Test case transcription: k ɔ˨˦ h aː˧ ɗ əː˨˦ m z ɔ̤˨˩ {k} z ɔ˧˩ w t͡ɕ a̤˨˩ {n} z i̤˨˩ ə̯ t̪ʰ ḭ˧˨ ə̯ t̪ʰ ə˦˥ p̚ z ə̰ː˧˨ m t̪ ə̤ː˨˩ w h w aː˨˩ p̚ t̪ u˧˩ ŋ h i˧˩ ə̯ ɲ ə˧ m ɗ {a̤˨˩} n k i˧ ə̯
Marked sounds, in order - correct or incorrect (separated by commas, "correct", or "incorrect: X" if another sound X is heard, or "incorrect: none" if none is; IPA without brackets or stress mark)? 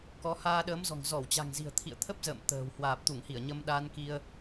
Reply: incorrect: ŋ, incorrect: ŋ, incorrect: a˧